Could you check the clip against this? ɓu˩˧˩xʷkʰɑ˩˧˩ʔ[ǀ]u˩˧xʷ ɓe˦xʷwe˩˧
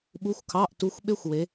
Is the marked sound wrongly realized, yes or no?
yes